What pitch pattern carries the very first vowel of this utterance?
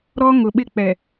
high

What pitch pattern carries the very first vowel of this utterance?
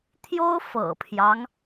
high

